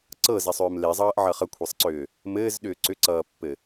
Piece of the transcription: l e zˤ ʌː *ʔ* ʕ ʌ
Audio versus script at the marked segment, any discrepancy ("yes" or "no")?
no